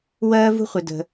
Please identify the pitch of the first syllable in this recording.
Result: high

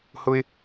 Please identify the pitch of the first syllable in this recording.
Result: high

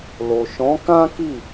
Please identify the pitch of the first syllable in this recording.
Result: low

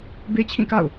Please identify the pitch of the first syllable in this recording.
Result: high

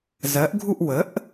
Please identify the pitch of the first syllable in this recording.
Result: rising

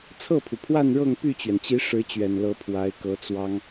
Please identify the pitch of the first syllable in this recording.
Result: falling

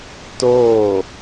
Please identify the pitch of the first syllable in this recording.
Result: falling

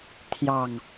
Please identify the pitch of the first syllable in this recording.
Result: falling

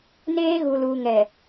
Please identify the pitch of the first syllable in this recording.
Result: high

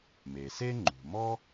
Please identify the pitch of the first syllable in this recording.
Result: low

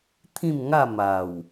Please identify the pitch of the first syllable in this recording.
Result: falling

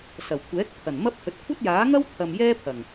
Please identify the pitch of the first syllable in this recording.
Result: low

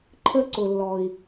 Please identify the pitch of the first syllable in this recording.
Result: high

